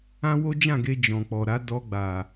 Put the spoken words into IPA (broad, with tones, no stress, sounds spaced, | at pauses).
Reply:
ã˦ w o˦ d͡ʒ ã˦˨ ɡ e˧ d͡ʒ ɔ̃˨ k͡p ɔ˨ ɾ a˨˦ d ɔ˧ ɡ͡b a˨